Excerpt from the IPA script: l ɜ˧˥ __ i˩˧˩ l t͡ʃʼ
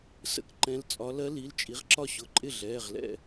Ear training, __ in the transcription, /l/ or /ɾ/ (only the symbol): l